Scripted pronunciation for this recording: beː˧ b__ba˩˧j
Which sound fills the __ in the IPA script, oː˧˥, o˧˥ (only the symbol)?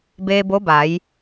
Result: o˧˥